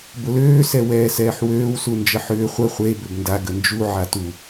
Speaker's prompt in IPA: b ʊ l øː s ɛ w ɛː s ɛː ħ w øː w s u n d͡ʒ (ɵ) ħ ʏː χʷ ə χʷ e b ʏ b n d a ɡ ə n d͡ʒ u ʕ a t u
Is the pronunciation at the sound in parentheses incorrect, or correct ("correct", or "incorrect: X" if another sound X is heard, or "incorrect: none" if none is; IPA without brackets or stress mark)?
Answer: incorrect: ə